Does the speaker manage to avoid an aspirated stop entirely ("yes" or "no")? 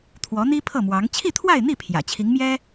no